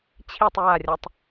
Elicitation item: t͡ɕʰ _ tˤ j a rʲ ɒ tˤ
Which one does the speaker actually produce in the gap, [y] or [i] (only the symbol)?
i